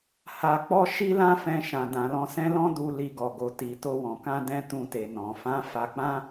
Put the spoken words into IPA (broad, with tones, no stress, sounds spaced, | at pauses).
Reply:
h a˨ k͡p ɔ˧ ʃ i˦ l ã˦ f ɛ̃˧ ʃ ã˨ d ã˨ l ɔ̃˧ s ɛ̃˦ l ɔ̃˦ d u˧ l i˧ ɡ ɔ˨ ɡ o˨ t i˨ t o˧ w ɔ̃˨ k ã˧ d ɛ̃˧ t ũ˧ t e˨ n ɔ̃˨ f ã˨˦ f a˧ k͡p ã˦